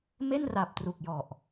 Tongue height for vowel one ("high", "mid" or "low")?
mid